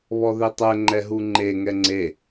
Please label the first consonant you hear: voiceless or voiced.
voiced